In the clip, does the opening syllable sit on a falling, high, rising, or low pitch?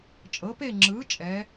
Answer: rising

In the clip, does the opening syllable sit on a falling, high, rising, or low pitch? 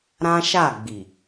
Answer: high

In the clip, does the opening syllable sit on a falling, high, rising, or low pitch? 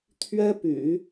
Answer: high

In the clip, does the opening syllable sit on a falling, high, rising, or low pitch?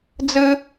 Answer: high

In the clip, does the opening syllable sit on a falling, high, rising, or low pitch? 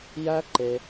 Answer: high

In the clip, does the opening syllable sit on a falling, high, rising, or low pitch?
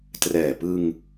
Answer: low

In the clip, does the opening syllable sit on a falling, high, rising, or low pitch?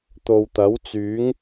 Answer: low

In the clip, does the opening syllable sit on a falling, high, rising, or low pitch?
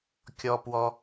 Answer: low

